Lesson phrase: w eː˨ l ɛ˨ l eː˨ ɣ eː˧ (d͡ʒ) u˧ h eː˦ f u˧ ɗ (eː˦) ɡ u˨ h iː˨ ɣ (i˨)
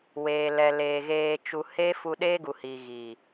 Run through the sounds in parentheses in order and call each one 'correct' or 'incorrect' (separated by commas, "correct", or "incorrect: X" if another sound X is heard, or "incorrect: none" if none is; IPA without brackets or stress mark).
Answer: incorrect: t͡ʃ, correct, correct